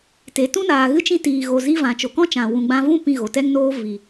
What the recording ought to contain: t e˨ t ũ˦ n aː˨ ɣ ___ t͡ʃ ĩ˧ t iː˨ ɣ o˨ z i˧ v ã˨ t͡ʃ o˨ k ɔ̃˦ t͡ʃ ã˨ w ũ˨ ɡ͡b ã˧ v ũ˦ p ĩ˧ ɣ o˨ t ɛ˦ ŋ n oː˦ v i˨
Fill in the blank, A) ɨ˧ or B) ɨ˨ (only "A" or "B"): A